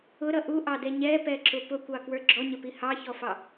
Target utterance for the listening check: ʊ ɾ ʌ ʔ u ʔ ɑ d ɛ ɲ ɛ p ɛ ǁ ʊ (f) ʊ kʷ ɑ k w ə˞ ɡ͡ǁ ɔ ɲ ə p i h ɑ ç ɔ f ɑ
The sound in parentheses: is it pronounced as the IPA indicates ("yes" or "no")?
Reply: no